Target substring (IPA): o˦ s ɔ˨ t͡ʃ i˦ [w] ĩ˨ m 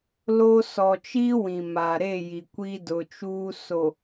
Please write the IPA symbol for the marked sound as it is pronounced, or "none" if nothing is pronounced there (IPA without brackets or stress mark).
w